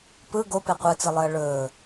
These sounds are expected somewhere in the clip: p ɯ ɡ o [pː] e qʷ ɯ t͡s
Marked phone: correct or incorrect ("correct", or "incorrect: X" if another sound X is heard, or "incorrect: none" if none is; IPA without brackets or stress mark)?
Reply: incorrect: p